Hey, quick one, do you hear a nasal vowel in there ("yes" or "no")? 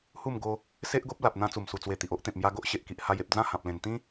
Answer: yes